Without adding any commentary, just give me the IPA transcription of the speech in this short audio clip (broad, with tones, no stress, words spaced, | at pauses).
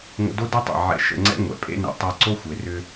ŋʷə̰˧do˦de˦tˤḛ˨ ʕɛ̰˧ʃə̰˧ ŋ͡ǀɛ̰˦ŋʷɛ̰˨pʼḛ˦nɛ̰˧ tˤɛ˧ǀo˦xʷe˨rʏ˧